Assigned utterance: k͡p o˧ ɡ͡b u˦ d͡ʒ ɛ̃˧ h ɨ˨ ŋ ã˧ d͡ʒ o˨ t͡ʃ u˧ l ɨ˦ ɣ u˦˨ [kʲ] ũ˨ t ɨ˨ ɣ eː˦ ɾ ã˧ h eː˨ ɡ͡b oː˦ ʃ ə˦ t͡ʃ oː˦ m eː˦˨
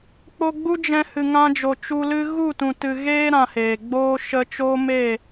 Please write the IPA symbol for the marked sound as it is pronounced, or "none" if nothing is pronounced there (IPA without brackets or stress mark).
t